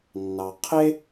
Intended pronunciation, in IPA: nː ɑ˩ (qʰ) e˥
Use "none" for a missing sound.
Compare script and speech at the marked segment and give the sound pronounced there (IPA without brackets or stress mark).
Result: qʰ